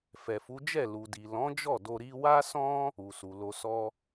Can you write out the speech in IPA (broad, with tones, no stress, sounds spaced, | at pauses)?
f ɛ˨ f u˨˦ d͡ʒ ɛ˦˨ l u˨ d i˨ l ɔ̃˨˦ d͡ʒ ɔ˦˨ d o˧ ɾ i˧ w a˦ s ɔ̃˦ | u˨ s u˨ l o˧ s ɔ˦